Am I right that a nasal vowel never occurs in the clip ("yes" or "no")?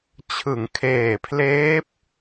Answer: yes